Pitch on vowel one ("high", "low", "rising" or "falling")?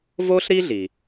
high